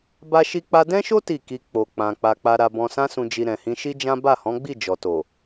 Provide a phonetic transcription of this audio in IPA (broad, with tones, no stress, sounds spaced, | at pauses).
b a˦ ʃ i˦ k͡p a˦ d ɛ̃˦ ʃ o˦ t i˦˨ k i˧ k͡p o˨ k͡p ã˨ k͡p a˨ k͡p a˨ ɾ a˨ b ɔ̃˨ s ã˧ s ũ˨ d͡ʒ i˨ ɾ ɛ̃˨ h ĩ˧ ʃ i˦ d͡ʒ ã˦ b a˦˨ h ɔ̃˨˦ ɡ͡b i˦˨ d͡ʒ ɔ˨ t o˨